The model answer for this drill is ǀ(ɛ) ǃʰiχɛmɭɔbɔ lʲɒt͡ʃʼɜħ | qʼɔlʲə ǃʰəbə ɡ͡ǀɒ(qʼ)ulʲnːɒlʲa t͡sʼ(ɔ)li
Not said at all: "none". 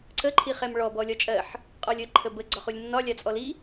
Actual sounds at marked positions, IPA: ə, χ, ɔ

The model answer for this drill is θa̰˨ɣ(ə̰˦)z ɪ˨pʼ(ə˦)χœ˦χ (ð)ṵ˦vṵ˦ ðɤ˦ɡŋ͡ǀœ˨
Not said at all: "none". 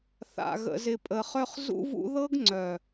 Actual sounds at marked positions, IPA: ə̰˨, ə˨, z

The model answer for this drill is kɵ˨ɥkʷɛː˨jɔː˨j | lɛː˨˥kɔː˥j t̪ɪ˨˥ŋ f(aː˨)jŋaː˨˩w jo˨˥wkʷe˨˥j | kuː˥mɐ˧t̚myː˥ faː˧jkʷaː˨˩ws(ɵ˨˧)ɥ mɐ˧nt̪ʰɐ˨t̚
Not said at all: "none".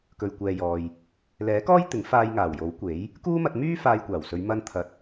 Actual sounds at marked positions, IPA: aː˧, ɵ˨˧

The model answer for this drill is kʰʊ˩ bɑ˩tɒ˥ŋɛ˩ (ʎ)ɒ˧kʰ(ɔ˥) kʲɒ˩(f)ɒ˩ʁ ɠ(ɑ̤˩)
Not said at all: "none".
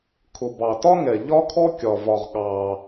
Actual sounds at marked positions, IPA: ʎ, ɔ˧, v, ɑ˩

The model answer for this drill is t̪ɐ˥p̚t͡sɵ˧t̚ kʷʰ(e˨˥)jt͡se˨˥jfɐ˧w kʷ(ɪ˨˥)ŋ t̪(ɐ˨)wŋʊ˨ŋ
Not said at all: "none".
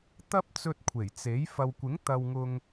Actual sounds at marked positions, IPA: e˨˩, ɪ˨˥, ɐ˨

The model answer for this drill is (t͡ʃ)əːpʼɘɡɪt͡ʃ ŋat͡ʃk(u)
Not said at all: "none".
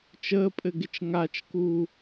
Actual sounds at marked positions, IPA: t͡ʃ, uː

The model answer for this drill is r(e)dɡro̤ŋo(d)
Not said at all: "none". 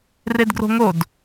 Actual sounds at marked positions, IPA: e, d

